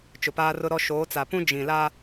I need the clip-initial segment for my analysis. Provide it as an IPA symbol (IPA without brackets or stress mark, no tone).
t͡ʃ